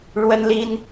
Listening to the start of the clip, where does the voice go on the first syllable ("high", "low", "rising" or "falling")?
high